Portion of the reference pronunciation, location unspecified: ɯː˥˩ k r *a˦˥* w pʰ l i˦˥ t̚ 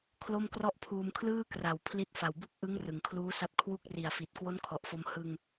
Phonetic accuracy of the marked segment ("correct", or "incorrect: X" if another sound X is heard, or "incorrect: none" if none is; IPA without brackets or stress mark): incorrect: a˨˩